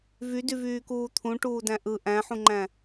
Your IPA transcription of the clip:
v y d y v yː k uː t̪ʰ ũ ʈ uː d æ̃ ʔ ɯ ʔ æ̃ ħ ũ ŋ͡ǃ æ̃

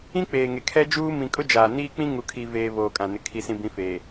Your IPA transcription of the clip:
ĩ˦ k͡p eː˨ ŋ e˨ kʰ ɛ˦ d͡ʒ uː˦ m ĩ˨ kʼ ʊ˦ d͡ʒ aː˨ n iː˦ k͡p ĩ˦ ŋ u˨ kʰ i˨ v eː˨ β oː˨ kʼ ã˨ n ɪ˨ kʰ i˨ s ĩ˨ b ĩ˨˦ f eː˨

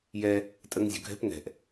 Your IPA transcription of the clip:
j ɛ | tʼ ə ŋ zʲ o̤ ɡʱ ɛ̤ p ŋ ɛ̤ ʔ

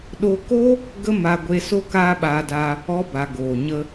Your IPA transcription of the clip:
ɗ o˧ k o˦ | ɡ ə˦ m a˧ ɡʷ e˧ s o˦ k aː˦ ɓ aː˧ d a˧ | ɔ˧ b a˨ ɡ oː˨ ɲ ə˧

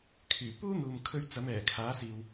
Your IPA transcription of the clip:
kʰ yː˨˩ p uː˥ n̪ uː˨ m kʰ ɵ˧ ɥ t͡s ɐ˨˥ m ɛː˨˩ kʰ aː˨˥ s iː˧ w

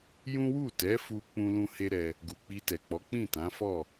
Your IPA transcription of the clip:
j ũ˦ w u˦˨ t ɛ˨˦ f u˧ k͡p ũ˦ l ũ˦ h e˦ ɾ ɛ˧ | ɡ u˨ k͡p i˧ t ɛ˨ k͡p ɔ˨˦ k͡p ĩ˦˨ t ã˨˦ f ɔ˦˨

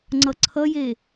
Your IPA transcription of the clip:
ŋ͡ǀ ʌ ǀʰ ʌ j e

